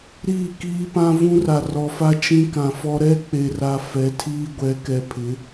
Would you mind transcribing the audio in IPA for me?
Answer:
ɾiː˦˨kiː˦pã˦ vũ˦ra˨rɔ˨fa˦ t͡ʃĩ˦kã˨fɔ˦ ɾɛ˦ k͡pe˨ra˨ fɛ˨˦tʰiː˦ɡʷɛ˨˦ kɛ˨pʰɪ˨˦

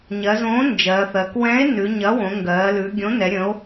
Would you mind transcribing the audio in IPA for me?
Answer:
ɲɜ˩˧zõː˩˥ nd͡ʒɜː˩˧θɜ˩˧k wɛ̃˩˥e̯ nʉ˩˧ɲɐ˩˥ wõ˩˧ŋɡɜː˩˧lʉ˩˧ ɡʲõ˩˥nɛ˩˧ ɾʲə̃˩˧o̯

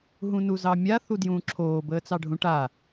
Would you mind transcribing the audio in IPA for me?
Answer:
ɦũnuzɑmʲa θudjũːǁʰoː bəːt͡sɑɖʱũʈa

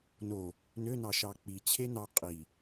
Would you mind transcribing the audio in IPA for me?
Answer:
no | nønɑ ʃɑk͡pit͡ɕʰe nɑ qʼi

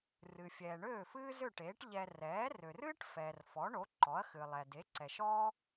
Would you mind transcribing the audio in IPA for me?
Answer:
rɨ˩fʲɛː˩ ɳøː˥˩fɨː˥zø˥˩ʈeː˩˥ʈ ʎɛ˧ rɛː˩˥rø˩rɨː˥ʈ fɛː˩rfɔ˩˥ɳo˩˥ ǃɔ˩˥ɐ̯xɨ˩lˠɛ˩ de˩˥ǀɛ˩ʃɔː˥

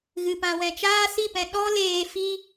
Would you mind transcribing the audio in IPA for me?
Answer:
ɣɨ˨pã˨wɛ̃˨ t͡ʃaː˦si˦˨pɛ̃˧ ɗɔ˦ leː˧fi˦

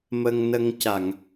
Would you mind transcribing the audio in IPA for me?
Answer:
mə˧ŋnə˧ŋ ca˨˩˨ŋ

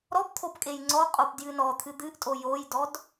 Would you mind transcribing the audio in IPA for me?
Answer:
ɾɔpt̪ʰop kʼejŋ͡ǀɔqʼop djɨnɔt̪ʰɨ d̪ɨʔtʼo jojdɔd

